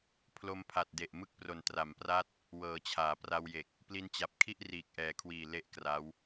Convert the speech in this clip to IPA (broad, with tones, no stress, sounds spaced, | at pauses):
pʰ l o˧ m pʰ a˨˩ t̚ d e˨˩ ʔ m ɯ˦˥ k̚ p r o˨˩ n t r a˩˦ m p r a˥˩ t̚ | w ɤː˩˦ t͡ɕʰ aː˩˦ p r a˧ w j e˨˩ k̚ | p l i˧ n t͡ɕ a˨˩ p̚ kʰ i˥˩ ʔ r iː˨˩ k̚ ʔ ɛː˩˦ kʰ w iː˨˩ l e˥˩ ʔ k r a˦˥ w